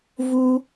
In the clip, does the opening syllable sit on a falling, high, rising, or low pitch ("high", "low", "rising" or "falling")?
high